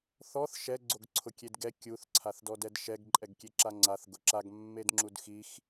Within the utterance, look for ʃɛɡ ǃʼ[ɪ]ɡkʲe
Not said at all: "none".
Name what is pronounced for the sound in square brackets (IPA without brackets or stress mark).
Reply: ɛ